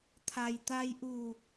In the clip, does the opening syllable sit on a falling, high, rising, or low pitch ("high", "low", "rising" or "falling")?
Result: low